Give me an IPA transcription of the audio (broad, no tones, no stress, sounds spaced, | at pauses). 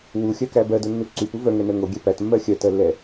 w u xʲ œ k æ b ɜ d o nː u ǀ y p u v œ ŋ ɛ n ɜ ŋ o ɡʲ ɛ p æ t mː ɜ xʲ œ t ɜ lː ɛ